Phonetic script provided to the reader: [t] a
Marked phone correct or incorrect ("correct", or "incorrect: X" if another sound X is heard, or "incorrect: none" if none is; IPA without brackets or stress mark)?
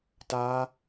correct